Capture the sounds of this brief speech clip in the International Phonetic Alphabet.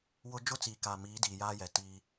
w ʊ˦ d͡ʒ ʊ˦ t͡s iː˨ k aː˨ m iː˨˦ d iː˨ j aː˦ j ɛ˨ t iː˦

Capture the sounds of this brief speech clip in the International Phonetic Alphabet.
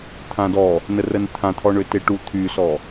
t̪ʰ ã d ɔ | n ə r ə n t̪ʰ ã t̪ʰ ɔ ɳ ø t e ʈ u t̪ʰ y s ɔ

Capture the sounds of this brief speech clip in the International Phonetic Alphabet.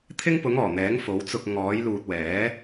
t̪ʰ ɪ˥ ŋ p ʊ˨˥ ŋ ɔː˨˩ n̪ ɛː˨˥ ŋ f o˨˥ w t͡s ʊ˧ k̚ ŋ ɔː˨˥ j l uː˨ t̚ w ɛː˨˥

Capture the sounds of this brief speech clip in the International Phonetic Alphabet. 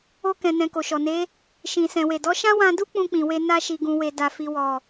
o˧ k ɛ̃˨ n ɛ̃˨ k o˨ ʃ ɔ˨ n e˨˦ | ʃ ĩ˨ s ɛ̃˨ w e˨ d ɔ˨˦ ʃ ã˦ w ã˧ d u˦ k͡p ũ˧ k͡p ĩ˨ w e˧ n a˧ ʃ i˨ ɡ ũ˨ w e˨ d a˨ f i˨ w ɔ˨

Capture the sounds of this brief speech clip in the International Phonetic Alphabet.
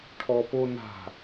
ʈʰ ɔ p o n a̤

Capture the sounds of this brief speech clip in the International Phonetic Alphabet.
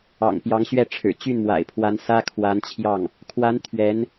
ɑ̰˨˩ ŋ p j ɑ˧˥ ŋ ɕ ɥ ɛ˥˩ ʈ͡ʂʰ ɻ̩˨˩ t͡ɕ y˥˩ n m w a̰˨˩ ɪ̯ pʰ w a˧˥ n s ä˥ kʰ w a˧˥ n t͡ɕʰ j ɑ˥˩ ŋ | kʰ w a˧˥ n t̪ʰ ɥ ɛ˧˥ n

